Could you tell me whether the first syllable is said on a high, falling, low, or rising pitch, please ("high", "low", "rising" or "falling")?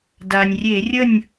low